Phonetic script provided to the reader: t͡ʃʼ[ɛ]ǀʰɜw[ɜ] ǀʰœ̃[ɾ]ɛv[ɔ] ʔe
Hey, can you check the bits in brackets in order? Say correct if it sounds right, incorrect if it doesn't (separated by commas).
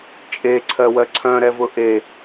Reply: incorrect, correct, correct, incorrect